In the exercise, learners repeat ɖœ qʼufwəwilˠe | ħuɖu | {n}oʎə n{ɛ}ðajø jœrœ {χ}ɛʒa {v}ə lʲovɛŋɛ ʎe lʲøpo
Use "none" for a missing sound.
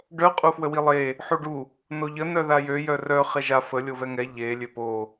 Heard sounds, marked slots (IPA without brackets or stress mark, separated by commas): n, œ, χ, f